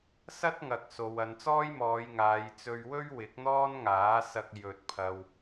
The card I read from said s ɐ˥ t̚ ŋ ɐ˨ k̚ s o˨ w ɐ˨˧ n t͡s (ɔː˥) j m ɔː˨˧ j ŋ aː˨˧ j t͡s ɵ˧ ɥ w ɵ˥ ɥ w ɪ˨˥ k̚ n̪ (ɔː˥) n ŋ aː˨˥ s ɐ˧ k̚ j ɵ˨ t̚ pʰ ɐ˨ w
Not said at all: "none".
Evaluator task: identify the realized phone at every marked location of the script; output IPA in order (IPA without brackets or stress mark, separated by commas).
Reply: ɔː˥, ɔː˥